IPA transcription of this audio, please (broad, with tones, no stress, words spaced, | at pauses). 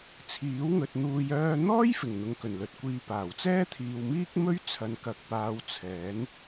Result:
t͡sʰiː˨˥wŋɵ˨t̚n̪uː˧j œː˧n̪ɔː˥jfɪ˨˩ŋ n̪ʊ˨˧ŋkɵ˨˩nlɵ˨t̚kʷiː˧ paː˨˩wt͡sɛː˥t̪ʰiː˨w miː˥k̚mɵ˥ɥt͡sʰɐ˨n kɐ˨k̚paː˨˧w t͡sʰɛː˨˥n